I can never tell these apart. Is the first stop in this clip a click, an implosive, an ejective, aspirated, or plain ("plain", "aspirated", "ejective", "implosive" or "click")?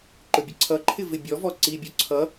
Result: click